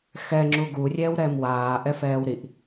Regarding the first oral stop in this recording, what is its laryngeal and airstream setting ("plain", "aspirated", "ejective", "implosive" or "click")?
click